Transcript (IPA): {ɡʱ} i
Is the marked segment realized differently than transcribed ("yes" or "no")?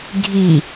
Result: no